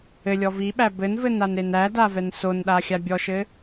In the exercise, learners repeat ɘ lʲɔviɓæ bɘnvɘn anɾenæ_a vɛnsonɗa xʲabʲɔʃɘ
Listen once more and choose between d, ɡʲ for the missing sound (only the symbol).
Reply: d